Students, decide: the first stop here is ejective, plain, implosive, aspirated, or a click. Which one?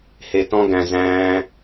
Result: plain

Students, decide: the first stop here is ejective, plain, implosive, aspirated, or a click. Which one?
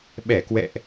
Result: implosive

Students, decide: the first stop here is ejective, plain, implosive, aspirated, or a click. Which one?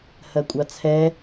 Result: ejective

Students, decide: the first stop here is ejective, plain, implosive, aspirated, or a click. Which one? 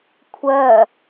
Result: aspirated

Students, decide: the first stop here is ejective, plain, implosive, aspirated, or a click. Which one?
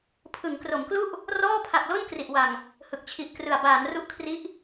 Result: aspirated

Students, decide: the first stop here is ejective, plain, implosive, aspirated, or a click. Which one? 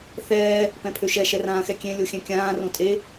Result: plain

